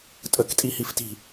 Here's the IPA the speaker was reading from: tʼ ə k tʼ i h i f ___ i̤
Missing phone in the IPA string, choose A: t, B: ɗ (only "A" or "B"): A